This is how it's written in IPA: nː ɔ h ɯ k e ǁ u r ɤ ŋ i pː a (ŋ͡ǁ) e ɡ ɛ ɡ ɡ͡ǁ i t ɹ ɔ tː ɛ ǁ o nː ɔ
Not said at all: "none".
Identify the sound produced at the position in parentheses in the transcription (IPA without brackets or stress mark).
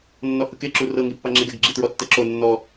ŋ͡ǁ